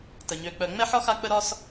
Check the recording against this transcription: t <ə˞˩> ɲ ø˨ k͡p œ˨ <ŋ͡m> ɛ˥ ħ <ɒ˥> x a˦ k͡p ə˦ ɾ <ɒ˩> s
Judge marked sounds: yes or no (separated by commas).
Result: no, yes, yes, no